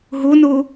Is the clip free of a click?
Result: yes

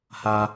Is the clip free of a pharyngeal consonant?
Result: yes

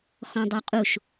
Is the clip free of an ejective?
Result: no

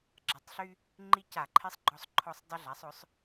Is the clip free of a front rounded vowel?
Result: no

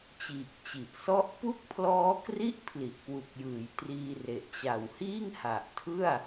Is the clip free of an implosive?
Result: yes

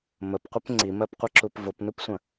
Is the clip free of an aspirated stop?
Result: yes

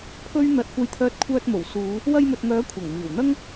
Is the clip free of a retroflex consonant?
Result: yes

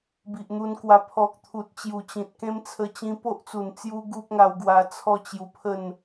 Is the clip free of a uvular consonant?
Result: yes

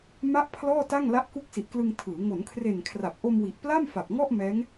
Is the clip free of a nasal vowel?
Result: yes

